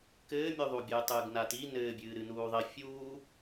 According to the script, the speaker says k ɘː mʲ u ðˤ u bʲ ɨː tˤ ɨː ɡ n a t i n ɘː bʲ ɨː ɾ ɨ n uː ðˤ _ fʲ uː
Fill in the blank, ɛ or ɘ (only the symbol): ɘ